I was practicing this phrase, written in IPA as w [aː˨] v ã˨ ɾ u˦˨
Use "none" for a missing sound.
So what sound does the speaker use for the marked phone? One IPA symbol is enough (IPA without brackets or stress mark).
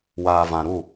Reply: aː˨